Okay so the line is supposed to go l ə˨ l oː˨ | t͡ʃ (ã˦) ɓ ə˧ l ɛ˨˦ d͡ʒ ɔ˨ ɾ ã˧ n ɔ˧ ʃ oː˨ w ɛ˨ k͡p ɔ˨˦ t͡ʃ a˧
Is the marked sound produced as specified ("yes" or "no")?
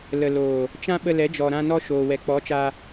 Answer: yes